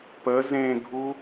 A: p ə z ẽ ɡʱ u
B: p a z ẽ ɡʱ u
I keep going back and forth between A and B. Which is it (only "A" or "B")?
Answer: A